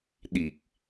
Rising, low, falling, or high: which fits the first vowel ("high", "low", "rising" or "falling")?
low